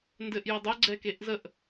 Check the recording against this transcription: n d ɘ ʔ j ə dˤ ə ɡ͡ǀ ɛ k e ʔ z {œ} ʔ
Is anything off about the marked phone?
yes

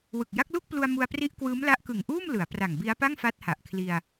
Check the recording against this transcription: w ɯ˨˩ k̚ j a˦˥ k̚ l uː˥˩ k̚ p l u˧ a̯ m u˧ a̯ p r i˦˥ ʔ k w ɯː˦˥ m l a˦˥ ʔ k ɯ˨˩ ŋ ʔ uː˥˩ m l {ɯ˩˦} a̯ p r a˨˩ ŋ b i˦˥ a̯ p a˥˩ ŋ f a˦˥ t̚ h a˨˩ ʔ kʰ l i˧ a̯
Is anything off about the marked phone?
no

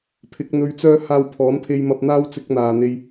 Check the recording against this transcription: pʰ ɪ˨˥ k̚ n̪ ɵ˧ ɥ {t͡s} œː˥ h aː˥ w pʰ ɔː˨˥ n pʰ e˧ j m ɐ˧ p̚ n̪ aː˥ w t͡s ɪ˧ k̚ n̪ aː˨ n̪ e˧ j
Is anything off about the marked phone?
no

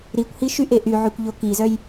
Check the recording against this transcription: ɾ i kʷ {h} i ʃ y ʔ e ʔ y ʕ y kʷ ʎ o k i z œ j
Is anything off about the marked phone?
no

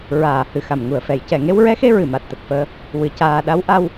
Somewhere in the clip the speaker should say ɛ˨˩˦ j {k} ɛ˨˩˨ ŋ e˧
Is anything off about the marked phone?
yes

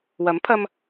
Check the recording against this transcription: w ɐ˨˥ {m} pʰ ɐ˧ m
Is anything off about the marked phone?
no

